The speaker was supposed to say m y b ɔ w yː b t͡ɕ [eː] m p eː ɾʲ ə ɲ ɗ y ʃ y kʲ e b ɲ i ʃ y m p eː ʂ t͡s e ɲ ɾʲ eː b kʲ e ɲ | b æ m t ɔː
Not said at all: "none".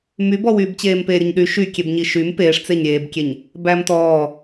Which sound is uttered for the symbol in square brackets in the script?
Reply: eː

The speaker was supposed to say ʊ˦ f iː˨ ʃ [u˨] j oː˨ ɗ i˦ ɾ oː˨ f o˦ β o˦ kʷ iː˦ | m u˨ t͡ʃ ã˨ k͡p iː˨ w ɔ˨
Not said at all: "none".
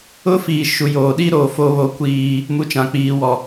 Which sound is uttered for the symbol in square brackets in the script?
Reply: u˨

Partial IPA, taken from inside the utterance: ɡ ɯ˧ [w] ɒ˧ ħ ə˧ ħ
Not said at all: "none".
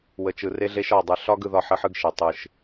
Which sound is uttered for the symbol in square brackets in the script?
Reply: ð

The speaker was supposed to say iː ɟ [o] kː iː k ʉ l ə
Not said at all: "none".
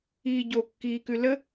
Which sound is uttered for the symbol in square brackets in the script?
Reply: o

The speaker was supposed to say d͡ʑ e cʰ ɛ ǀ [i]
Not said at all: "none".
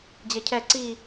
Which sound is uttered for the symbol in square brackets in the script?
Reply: i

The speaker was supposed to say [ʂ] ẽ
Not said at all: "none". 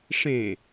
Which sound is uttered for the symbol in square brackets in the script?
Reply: ʂ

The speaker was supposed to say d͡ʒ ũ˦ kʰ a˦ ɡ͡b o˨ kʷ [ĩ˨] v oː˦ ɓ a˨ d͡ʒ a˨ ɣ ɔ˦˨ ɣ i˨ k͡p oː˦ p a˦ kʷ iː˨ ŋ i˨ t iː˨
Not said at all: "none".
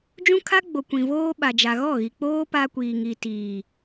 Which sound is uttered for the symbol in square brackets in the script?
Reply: ĩ˨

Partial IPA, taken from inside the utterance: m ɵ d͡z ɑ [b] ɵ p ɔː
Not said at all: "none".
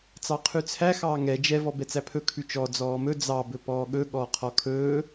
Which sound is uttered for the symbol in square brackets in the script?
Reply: b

